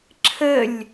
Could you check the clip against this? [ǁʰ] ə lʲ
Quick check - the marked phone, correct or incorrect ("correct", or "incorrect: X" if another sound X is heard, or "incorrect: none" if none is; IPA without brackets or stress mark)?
correct